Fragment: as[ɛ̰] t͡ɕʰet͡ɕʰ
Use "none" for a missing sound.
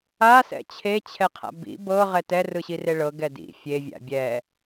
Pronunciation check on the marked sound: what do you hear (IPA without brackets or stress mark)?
ɛ̰